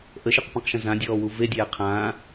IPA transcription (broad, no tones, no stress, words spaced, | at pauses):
ʔəʃɨqpĩqʃə̃ zãdʲɔːwu vedʲæː qʰãː